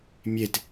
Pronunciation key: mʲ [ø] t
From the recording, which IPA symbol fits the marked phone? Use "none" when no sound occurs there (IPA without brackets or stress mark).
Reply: e